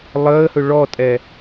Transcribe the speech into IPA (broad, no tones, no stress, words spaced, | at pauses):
lˠəːhɵ ɭɔtʼɛ